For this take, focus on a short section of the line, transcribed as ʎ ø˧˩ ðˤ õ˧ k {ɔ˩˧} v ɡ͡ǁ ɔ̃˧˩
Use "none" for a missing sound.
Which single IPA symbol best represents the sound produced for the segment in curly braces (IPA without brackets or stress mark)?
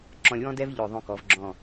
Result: ɔ˩˧